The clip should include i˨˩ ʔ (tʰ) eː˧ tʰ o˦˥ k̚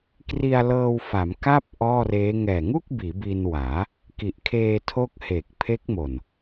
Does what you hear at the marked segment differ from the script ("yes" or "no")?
yes